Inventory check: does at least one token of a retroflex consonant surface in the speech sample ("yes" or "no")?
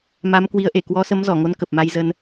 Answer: no